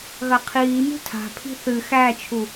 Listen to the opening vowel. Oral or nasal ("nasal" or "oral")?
oral